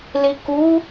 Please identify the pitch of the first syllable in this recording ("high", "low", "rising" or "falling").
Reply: low